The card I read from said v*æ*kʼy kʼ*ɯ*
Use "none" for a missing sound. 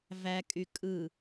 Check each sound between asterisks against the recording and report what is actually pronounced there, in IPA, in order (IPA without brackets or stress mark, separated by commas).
æ, ɯ